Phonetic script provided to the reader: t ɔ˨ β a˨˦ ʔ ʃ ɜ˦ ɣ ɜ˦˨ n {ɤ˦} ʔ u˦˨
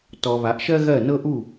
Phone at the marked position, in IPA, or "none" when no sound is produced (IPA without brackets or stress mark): ɤ˦